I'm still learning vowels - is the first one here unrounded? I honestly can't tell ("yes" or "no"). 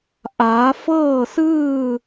yes